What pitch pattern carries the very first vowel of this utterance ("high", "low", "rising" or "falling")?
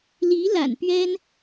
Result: rising